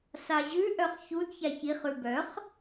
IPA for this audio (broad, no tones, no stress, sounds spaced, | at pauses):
s a ʑ ʉ ʔ œ χ ç u d ç a ç i χ ʉ b œ χ